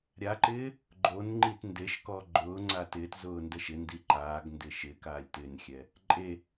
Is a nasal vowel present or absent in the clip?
absent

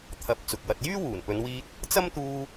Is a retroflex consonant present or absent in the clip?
absent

